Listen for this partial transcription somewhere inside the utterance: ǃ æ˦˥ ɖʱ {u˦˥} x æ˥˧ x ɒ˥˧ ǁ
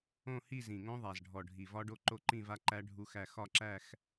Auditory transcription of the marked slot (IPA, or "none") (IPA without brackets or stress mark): u˦˥